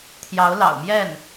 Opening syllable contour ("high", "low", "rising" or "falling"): rising